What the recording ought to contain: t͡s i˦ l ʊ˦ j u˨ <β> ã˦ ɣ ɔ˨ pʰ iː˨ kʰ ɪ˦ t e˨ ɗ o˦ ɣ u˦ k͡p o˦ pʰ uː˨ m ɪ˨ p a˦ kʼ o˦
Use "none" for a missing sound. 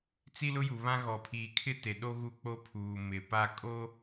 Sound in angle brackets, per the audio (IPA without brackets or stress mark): β